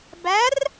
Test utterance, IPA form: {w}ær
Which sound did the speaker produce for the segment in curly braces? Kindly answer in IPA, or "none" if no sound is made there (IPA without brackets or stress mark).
b